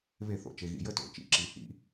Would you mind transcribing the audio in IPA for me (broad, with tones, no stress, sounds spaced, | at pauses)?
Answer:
β e˧˩˧ θ o̰˩ t͡ʃ e˩ ɣ ḭ˩ j ə˥˨ t o̰˩˧˩ t͡ʃ ḭ˨˥ ǁ i˩ h ḭ˧˩˧